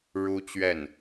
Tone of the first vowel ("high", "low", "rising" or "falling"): high